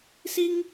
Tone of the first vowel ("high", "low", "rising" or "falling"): high